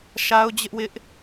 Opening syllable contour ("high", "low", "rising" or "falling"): high